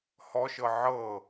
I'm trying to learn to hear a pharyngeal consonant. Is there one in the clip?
yes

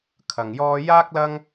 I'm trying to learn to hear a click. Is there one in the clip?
no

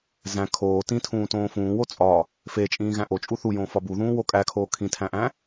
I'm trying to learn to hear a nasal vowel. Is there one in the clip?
yes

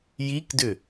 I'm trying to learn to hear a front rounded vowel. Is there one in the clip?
yes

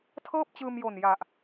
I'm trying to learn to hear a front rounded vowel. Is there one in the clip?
no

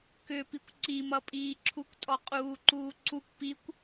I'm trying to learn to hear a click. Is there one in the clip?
yes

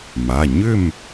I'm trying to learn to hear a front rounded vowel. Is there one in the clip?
yes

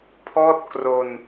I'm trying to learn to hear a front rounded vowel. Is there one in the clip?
no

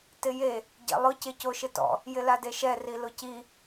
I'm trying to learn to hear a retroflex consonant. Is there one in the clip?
no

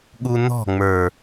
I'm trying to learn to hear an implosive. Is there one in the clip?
yes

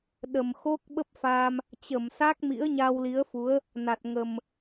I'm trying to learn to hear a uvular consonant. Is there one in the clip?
no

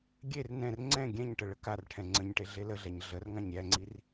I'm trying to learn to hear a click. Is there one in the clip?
yes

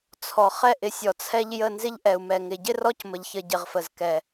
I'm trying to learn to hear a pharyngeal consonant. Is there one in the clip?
no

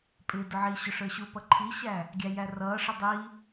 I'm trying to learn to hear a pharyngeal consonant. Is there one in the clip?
yes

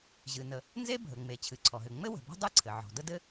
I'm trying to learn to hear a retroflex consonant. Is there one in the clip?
no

